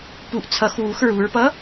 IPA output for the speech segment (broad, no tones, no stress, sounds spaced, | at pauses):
p u ʔ t͡sʰ ʌ x w u x ɹ u ɹ p ʌ